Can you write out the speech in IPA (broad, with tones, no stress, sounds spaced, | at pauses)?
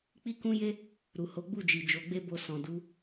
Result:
k͡p i˦ k ũ˦ j e˦ | ɾ u˨ h o˨˦ ɡ͡b u˦˨ d͡ʒ i˨ d͡ʒ o˨˦ ɡ͡b e˦ b o˧ s ɔ̃˨ d u˨˦